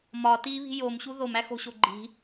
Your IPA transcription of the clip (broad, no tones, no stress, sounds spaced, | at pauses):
m ɒ t i β i̤ j o m ɕ u ð o m æ x o̤ ɕ o ɡ͡ǃ i̤